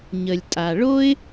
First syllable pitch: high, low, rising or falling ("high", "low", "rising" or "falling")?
low